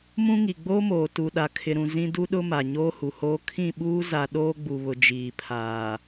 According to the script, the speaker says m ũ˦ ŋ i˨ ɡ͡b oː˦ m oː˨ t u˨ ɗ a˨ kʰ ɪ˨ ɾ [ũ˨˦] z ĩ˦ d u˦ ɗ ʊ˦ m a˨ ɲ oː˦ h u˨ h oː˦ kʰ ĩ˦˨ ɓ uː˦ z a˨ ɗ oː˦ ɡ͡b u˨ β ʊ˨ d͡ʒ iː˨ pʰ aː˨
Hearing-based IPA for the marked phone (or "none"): ũ˨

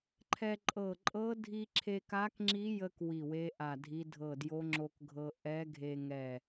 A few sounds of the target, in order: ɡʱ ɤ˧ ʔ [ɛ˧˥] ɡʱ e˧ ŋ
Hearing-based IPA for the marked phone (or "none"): ɛ˧˥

